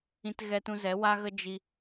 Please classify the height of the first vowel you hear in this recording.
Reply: high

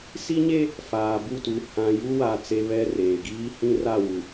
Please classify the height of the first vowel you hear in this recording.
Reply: high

